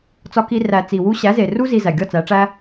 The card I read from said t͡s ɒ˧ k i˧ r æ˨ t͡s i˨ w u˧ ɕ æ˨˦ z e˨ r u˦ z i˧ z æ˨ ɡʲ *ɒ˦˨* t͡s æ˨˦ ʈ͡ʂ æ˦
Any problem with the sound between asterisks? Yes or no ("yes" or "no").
no